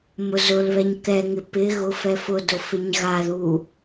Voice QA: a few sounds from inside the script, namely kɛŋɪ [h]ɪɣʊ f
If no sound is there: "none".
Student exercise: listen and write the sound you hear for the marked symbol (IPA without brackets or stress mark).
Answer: p